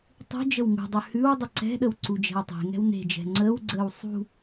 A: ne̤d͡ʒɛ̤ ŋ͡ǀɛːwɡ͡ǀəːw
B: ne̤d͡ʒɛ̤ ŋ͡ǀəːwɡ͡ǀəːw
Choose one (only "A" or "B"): B